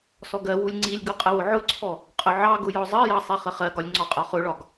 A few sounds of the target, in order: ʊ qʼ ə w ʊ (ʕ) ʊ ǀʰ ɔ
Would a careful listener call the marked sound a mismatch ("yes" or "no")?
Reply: no